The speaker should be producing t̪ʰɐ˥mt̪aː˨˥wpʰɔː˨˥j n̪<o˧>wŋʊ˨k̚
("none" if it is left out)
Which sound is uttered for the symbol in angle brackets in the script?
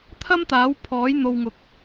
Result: o˧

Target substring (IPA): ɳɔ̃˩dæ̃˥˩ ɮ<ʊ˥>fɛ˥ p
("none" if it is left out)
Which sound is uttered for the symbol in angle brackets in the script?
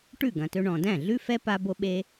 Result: ʉ˥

